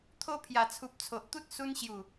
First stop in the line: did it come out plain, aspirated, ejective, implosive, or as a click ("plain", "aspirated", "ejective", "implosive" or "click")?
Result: aspirated